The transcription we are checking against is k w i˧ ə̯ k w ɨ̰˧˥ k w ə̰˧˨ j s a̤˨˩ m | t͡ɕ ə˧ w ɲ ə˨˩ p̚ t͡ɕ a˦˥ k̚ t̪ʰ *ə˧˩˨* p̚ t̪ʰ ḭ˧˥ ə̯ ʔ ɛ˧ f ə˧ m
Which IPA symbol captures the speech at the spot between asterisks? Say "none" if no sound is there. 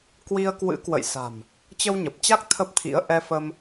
ə˦˥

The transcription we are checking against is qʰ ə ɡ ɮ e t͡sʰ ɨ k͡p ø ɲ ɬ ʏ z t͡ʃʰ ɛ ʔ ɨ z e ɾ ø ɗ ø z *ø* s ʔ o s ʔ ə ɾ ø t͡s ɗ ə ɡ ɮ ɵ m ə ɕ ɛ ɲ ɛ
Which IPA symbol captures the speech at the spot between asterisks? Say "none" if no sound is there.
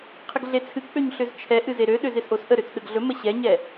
e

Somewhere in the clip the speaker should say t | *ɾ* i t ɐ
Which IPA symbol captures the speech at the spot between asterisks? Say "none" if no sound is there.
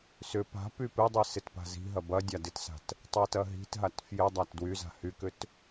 tˤ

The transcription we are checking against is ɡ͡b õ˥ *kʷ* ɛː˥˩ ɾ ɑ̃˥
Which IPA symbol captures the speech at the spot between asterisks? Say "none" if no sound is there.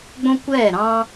kʷ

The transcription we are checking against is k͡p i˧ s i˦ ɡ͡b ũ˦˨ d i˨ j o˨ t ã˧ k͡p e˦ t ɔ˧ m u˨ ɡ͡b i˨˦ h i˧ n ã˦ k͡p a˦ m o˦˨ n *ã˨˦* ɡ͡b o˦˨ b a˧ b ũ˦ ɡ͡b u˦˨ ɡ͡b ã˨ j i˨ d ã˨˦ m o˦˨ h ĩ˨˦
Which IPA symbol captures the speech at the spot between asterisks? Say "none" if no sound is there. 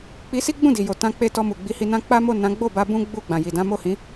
ã˨˦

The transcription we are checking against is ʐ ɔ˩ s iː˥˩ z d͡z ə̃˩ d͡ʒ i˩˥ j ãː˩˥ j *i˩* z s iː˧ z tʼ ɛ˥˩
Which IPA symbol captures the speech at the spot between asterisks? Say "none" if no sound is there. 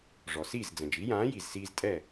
i˩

